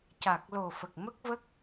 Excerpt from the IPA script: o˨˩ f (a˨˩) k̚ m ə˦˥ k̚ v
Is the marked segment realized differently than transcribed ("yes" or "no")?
yes